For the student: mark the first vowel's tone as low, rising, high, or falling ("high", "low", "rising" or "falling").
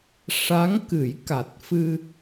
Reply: rising